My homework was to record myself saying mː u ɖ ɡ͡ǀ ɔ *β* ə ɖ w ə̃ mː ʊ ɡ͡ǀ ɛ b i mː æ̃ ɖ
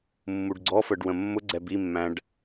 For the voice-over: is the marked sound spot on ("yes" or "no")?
no